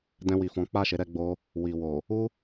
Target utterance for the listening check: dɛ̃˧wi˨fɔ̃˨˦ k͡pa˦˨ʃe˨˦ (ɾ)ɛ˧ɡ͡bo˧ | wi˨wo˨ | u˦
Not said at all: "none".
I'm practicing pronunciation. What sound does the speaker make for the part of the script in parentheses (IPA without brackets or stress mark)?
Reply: ɾ